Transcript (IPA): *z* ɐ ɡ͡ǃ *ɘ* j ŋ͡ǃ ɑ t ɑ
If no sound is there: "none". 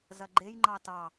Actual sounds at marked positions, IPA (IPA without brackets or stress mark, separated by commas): z, e